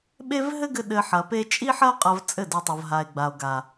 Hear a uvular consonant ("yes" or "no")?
yes